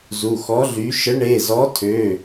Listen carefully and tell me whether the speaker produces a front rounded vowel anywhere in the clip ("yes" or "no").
yes